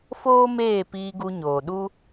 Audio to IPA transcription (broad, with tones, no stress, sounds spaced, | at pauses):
f oː˦ m eː˦˨ p iː˧ ɡ u˧ ɲ oː˨ ɗ u˦